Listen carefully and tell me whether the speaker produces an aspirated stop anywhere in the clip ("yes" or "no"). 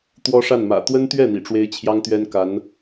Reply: yes